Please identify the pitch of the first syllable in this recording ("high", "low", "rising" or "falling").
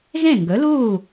falling